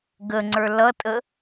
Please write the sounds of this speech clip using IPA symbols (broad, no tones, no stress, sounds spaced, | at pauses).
ɡ ə ŋ͡ǀ ə˞ l ʌ tʼ ə